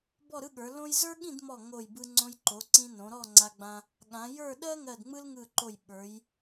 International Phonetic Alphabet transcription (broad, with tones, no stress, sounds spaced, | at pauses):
b ɔ˥˧ ɾ ɯ˥ ɠ ə˞˩˧ l õ˥ j z ə˞˥ ɠ ĩ˥˧ d m ɔ˧˩ ŋ o˧˩ j b ɯ˧ ŋ͡ǀ õ˧ j ǃ o˩˧ ǀ ĩ˧ n õ˩˧ ɾ ɔ˥˧ ŋ͡ǀ a˧ ɡ͡b ã˧ | ɠ ã˩˧ j ə˞˥˧ ɗ ɜ˥ ŋ ɜ˧˩ d ŋ͡m ɯ˥ l ŋ ɯ˧˩ ǃ o˧˩ j ɓ ə˞˩˧ j